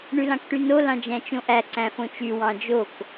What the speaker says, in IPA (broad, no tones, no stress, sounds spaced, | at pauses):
ɳ y l ɑ̃ k ʈ y n o l ɑ̃ d͡ʒ æ̃ t͡ʃ õ ʔ æ ǀ æ̃ f õ t͡ʃ y w ɑ̃ d͡ʒ o k